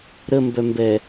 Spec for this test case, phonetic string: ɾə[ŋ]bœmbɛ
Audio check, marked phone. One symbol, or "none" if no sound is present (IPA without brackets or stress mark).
m